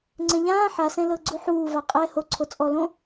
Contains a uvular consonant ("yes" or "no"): yes